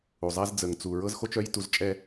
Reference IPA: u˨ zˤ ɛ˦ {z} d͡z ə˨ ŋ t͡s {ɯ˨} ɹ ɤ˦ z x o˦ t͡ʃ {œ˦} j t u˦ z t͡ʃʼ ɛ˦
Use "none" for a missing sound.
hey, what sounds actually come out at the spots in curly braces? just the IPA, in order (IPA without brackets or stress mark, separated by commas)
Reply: z, u˨, œ˦